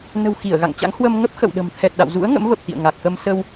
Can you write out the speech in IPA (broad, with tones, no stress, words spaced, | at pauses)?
nə̤˨˩w xi˧˩ə̯ɣa̰˧˨ŋt͡ɕa̰˧˥ŋ hwə˧mŋə˦˥p̚ xə̰˧˨wɗə̤˨˩m t̪ʰɛ˨˩t̚ɗa̰˧˨wzṵ˧˥ə̯ ŋə̰˧˥mvə˨˩p̚ t̪ḭ˧˨ə̯ŋa˨˩k̚ xə˧msə˧w